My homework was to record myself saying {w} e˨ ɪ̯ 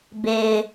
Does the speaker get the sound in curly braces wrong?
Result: yes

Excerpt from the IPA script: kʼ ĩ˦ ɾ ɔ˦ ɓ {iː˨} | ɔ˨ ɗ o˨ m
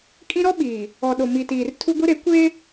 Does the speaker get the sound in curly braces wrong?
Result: no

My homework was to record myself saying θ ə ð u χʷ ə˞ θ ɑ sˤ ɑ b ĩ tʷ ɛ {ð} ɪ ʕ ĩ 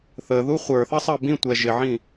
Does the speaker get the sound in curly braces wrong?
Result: yes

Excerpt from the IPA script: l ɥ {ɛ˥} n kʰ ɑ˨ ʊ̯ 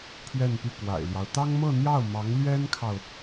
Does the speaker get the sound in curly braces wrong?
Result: no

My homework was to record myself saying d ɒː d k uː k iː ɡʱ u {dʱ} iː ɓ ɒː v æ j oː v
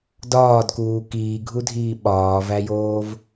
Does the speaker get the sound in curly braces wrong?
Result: no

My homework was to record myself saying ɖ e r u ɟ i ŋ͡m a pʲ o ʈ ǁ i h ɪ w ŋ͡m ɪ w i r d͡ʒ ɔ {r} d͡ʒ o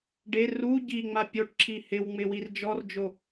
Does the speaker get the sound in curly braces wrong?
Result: no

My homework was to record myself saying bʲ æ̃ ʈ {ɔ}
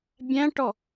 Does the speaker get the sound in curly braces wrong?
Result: no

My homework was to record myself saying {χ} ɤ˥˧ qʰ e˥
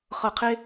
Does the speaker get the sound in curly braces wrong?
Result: no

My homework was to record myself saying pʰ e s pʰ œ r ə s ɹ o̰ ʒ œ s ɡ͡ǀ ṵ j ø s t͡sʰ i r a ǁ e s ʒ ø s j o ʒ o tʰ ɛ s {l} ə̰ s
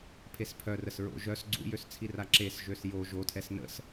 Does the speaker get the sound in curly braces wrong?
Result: yes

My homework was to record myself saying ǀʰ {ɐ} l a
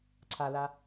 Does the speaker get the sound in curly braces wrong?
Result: yes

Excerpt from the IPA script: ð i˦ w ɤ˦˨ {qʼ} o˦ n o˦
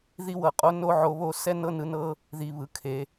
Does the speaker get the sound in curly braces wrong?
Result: no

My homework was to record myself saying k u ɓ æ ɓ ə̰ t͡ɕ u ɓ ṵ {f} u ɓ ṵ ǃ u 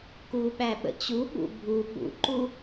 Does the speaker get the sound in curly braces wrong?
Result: yes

